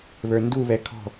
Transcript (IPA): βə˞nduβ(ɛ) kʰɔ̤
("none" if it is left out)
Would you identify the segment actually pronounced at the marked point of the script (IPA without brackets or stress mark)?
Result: ɛ